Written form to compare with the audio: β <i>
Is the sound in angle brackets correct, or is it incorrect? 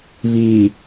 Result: correct